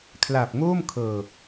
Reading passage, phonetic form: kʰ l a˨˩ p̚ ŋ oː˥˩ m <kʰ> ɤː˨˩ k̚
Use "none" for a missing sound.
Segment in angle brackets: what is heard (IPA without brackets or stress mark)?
kʰ